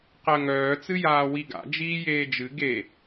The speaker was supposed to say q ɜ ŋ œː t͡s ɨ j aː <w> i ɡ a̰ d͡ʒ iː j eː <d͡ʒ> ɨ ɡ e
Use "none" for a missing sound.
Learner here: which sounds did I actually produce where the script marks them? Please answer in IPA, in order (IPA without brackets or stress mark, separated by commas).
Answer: w, d͡ʒ